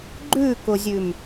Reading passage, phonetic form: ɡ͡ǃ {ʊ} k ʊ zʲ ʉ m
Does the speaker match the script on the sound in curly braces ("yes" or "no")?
no